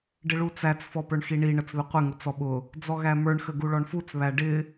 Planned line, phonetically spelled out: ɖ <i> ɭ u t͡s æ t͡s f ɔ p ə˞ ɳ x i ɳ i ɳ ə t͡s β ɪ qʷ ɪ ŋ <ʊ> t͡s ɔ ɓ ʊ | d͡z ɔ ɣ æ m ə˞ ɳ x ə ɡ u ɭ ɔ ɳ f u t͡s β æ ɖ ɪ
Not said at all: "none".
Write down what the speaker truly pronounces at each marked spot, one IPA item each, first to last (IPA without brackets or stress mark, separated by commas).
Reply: ɪ, ʊ